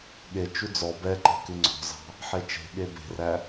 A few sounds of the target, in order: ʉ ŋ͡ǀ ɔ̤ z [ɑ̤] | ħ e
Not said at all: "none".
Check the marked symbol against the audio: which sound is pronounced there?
ɑ̤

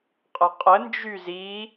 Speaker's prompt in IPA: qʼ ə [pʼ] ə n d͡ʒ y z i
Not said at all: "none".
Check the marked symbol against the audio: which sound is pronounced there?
qʼ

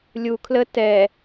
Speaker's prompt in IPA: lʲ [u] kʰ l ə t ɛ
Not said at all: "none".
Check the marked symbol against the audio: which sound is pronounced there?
u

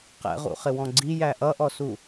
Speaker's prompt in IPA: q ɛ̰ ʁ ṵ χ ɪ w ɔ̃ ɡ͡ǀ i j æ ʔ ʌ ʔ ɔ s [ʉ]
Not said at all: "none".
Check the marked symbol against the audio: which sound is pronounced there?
u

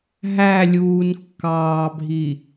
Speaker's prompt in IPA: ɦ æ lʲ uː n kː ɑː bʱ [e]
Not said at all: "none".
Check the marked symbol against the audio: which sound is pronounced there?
i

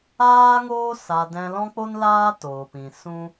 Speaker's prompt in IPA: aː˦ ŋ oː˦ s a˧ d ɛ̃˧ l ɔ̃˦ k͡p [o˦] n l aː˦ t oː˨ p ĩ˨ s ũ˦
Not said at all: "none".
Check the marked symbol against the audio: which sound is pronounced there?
o˦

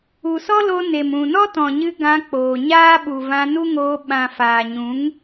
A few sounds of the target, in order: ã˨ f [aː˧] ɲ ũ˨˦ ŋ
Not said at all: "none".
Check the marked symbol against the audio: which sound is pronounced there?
aː˨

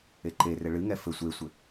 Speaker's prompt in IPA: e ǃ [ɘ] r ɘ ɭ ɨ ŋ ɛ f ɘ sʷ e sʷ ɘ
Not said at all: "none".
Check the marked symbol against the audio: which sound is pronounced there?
e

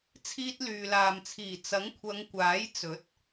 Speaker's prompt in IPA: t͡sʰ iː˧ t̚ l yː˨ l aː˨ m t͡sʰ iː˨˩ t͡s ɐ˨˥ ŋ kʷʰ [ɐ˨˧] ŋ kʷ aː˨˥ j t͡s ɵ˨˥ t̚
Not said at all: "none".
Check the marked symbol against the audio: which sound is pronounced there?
ɐ˨˧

